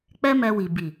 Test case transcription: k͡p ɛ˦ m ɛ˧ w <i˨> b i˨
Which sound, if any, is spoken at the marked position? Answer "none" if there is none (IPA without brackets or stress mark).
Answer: i˨